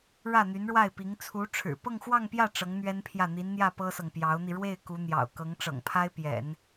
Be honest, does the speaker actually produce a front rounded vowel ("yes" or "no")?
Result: yes